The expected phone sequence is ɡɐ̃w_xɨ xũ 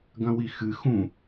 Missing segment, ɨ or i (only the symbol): i